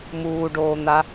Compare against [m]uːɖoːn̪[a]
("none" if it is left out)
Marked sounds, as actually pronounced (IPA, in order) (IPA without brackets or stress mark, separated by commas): m, a